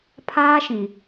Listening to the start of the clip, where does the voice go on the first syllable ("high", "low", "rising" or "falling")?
high